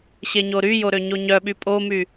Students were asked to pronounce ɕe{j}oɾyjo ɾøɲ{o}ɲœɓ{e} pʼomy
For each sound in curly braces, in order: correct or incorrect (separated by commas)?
incorrect, correct, incorrect